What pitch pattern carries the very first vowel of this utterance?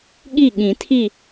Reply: falling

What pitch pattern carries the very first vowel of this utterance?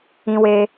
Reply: high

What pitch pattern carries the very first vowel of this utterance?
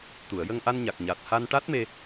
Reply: low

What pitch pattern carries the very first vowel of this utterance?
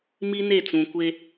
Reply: high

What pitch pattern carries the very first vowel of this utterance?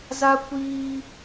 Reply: high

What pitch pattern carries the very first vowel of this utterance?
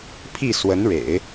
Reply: falling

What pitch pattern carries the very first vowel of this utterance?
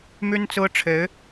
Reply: high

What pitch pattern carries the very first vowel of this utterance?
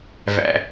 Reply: low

